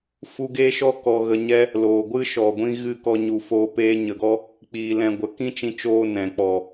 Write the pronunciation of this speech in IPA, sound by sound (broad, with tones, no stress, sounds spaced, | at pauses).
f u˧ ɡ eː˦ ʃ ɔ˦ k ɔ˧ ɣ ə˧ ɲ ɛ˦ | l oː˨ ɡʷ ɨ˦ ʃ ɔ˨ ɡʷ ĩ˧ ɣ ɨ˦˨ k ɔ˧ ɲ u˨ f oː˧ p eː˧ ɲ ə˨ ɡ ɔ˦ | k͡p iː˧ l ɛ̃˧ ɡʷ ə˨˦ k ĩ˦ t͡ʃ ĩ˧ t͡ʃ oː˧ n ɛ̃˨ k͡p ɔ˨